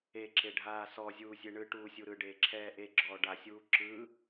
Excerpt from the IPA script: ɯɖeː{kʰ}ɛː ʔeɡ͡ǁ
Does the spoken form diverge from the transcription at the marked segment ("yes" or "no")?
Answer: yes